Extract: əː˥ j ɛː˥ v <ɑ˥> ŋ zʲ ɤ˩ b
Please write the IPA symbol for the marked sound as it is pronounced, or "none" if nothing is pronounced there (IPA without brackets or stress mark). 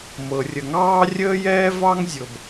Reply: ɑ˥